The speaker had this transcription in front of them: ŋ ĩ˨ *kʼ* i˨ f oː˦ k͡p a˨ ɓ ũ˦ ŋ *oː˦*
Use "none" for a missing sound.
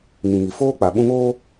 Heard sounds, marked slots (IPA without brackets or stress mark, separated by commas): ŋ, oː˦